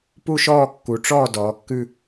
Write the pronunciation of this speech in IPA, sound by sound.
pu˥˧ʃɔː˥˧ kːu˩˧ʈ͡ʂɔː˥˧ dɔː˩˧kːʉ˥˧

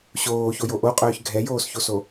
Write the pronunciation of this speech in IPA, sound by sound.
ɕoːçojo ʔoqʼœːç ɡʱɛjoːsçoso

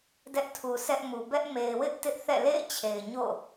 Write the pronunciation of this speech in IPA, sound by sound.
dɛ˦ʔtʰu˨sɛ˦ʔmu˨ bɛ˦ʔme˨ɪ̯ wɪ˦ʔ tɪ˦ʔθɛ̰˦˨ lḛ˦˨ɪ̯t͡ɕʰe˨ɪ̯ɲo̰˦˨

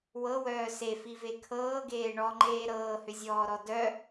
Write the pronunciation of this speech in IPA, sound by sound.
wɤwœː sefive kʰɤːɡeː ɳɔŋ͡ǃeː ɾɤːhʏzʲɔːɾɔ dœ

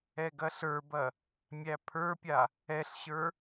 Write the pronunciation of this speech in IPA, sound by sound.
ɛɡɐɬə˞bɐ | mʲæpʰə˞pʲa | ɛɬɕə˞

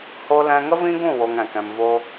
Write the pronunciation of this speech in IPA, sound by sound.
ho˧ lɛ̃˧ŋə˦vĩ˦ɡũ˦˨ wo˧ŋɛ̃˨kɛ̃˧m vo˧

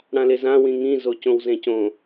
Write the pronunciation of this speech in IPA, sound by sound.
ɽãlezã wĩŋĩ zocõwzẽcõ

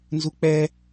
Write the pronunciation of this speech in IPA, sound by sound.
nzuk͡pɛ

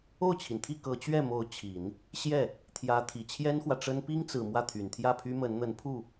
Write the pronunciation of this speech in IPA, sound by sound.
o˥˩ʊ̯t͡ɕʰi˩nt̪ʰi˥˩ kɤ˧˥t͡ɕɥɛ˥˩mo˧˥ʊ̯ t͡ɕʰi˨˩˦n | ɕjɛ˥˩ | t̪ʰjä˧˥ t̪ʰi˨˩t͡ɕʰjɛ˥nxwä˨ʈ͡ʂə˥n pi˥ŋt͡sɹ̩˨˩ mwä˥˩t̪ʰy˨˩nt̪ʰjä˥˩pʰy˥ mə˧˥nn̪ə˧˥n pʰu˥˩

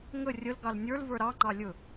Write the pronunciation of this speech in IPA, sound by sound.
ŋə rʲəl ɡɑlnʲə˞l və˞ɾɑ ŋ͡ǃɑlʲɵ

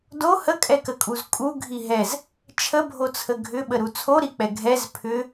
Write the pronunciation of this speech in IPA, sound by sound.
do həkʼɛkəkʼuz kʼuɡʱi ɦɛz | t͡ʃʰəbʱot͡sʰə ɡʱʏɓəɾu t͡sʰoɾik͡pɛ ɡʱɛz pʰʏ

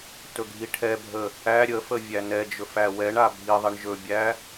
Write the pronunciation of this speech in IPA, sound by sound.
tɵɡʱiʈʰɛbʱə | æ ɾʲəfə vʲænɛd͡ʒɵf æwɛɳa bʱiðˤiɳ ʒɵbʲæ

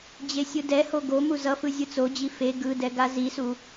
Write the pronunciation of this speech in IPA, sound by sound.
d͡ʑesʲɯdɛho ɡo muzʌfɯ zʲɯt͡sod͡ʑi fe ɡɯdɛ ɡazisu

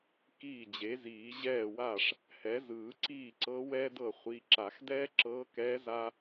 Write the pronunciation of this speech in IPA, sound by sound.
kiː˥˩d͡ʑe˩˥ziː˨˩˦ ʑɛː˥˩wa˥˩ʂ | hɛ˩˥zɯː˨˩˦ǀiː˥˩ǀɤ˧˥ wɛː˥dɤ˥˩ χʷi˩˧˩ǁa˨˩˦x dɛː˥ǁɤː˧˥kɛː˧˥ za˥

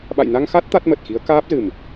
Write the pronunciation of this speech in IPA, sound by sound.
ɓa̰˧˨jna˧ŋxa˦˥t̚ t̪a˦˥t̚mə˨˩t̚xi˨˦ə̯ kaː˦˥p̚zɨ˨˩m

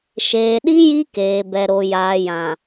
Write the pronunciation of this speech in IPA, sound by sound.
ʃeː˨ɗi˦ ji˦keː˨bɛ˨ɾo˨ jaː˨jã˨

